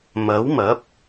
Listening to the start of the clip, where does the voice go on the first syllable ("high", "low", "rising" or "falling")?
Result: rising